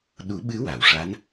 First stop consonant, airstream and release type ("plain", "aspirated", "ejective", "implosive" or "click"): implosive